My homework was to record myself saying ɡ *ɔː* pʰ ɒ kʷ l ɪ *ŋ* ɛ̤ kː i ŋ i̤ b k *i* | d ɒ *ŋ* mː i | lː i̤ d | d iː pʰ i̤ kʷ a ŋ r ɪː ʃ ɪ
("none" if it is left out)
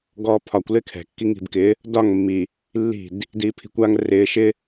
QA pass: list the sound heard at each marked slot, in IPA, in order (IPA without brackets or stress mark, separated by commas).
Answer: ɔː, kʰ, ɪ, ŋ